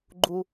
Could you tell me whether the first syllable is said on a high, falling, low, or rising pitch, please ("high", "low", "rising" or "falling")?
high